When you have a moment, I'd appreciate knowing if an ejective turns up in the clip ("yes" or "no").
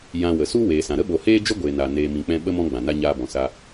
no